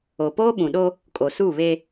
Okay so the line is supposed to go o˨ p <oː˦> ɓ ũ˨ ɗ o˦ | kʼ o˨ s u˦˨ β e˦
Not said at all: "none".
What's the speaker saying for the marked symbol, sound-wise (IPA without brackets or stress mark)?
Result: oː˦